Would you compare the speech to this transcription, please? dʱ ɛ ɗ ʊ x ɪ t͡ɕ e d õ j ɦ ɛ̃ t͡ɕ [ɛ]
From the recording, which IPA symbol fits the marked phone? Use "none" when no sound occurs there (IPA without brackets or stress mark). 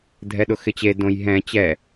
ɛ